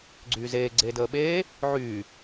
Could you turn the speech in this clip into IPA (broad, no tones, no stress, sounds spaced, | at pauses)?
ɡ͡ǀ yː z eː ɡ͡ǀ eː d əː ɓ eː | ʕ yː